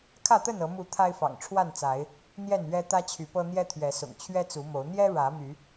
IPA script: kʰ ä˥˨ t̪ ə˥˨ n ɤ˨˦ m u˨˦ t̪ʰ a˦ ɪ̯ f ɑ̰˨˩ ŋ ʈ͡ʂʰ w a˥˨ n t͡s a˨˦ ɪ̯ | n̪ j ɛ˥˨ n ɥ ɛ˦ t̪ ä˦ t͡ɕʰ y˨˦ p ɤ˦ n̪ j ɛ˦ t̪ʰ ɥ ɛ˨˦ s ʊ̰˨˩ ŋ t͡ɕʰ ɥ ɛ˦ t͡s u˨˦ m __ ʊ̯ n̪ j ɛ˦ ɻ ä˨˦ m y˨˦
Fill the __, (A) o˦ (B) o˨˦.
B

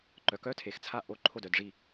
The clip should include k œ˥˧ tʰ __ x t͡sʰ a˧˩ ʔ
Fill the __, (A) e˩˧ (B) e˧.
A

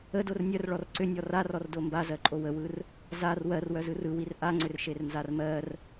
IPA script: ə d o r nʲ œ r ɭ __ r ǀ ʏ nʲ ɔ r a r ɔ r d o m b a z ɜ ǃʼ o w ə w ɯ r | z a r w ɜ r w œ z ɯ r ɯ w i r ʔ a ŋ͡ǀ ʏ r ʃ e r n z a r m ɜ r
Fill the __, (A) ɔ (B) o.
A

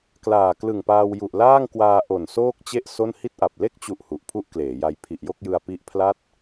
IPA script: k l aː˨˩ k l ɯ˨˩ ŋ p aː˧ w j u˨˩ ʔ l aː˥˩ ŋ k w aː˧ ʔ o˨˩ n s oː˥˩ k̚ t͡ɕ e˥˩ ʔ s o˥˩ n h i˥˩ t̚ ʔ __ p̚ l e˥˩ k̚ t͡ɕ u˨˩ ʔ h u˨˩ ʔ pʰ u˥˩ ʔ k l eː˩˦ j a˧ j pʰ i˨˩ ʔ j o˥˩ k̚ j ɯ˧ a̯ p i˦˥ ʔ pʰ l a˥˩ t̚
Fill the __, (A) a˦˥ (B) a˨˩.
B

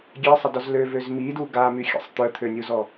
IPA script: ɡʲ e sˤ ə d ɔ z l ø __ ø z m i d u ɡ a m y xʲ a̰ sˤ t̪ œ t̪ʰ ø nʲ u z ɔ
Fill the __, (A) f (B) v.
B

